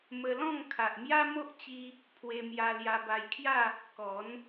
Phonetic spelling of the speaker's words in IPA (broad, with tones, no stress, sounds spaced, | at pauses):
m ə˧ l ɔ̃˥˧ ŋ kʰ a˨ ʔ m j a˦ m o˦ ʔ t͡ɕ i˦ | pʰ w e˧ m j a˧ l j a˧ b a˧ j kʰ j a˥˧ | k ɔ˨˦ n